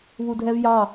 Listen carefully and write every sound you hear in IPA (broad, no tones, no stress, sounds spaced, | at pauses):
β u dʱ ɛ v j ɑ